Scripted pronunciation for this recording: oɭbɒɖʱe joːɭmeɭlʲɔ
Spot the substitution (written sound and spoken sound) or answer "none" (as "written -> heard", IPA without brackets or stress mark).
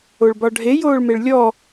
none